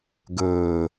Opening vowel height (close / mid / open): mid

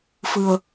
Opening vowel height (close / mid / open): close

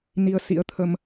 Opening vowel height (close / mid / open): close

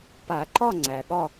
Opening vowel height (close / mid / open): open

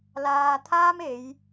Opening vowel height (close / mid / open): open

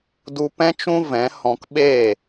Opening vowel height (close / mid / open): close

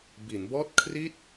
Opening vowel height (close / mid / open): close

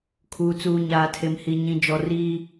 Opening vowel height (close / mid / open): close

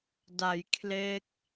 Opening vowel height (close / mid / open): open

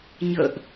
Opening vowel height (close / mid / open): mid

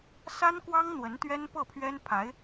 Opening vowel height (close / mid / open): open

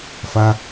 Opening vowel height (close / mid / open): open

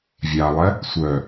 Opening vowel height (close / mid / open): open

